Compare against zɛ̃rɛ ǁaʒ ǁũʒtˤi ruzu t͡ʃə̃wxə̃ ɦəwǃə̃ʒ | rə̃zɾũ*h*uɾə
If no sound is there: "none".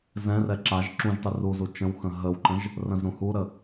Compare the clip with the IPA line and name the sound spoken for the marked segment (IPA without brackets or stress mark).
h